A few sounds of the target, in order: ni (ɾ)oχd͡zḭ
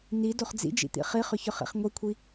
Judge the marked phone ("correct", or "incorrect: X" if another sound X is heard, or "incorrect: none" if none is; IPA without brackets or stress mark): incorrect: d